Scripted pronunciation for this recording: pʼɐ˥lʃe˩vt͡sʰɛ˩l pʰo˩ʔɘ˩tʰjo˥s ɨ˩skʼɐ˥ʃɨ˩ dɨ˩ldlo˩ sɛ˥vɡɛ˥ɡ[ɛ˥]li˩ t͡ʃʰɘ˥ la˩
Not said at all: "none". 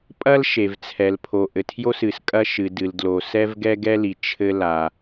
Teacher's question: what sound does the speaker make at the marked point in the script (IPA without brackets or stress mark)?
ɛ˥